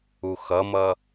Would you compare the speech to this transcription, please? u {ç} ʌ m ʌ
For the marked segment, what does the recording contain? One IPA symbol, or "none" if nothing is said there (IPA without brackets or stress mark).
x